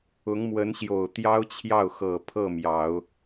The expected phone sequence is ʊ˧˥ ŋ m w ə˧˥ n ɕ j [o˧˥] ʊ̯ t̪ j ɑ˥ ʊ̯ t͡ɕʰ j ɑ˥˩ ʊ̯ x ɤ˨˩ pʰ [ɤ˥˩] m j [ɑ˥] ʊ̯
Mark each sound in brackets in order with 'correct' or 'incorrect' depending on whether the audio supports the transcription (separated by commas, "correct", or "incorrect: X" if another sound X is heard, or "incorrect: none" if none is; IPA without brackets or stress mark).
incorrect: o˨˩, correct, incorrect: ɑ˨˩˦